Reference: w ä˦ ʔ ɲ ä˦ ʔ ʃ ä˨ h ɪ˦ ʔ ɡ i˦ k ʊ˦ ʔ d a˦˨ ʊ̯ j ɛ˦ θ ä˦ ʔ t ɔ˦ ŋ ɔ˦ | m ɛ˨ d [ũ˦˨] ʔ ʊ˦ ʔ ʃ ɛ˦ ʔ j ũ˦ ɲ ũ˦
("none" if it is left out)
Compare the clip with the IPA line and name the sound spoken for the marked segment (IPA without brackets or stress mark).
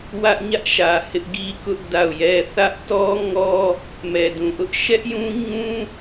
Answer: ũ˨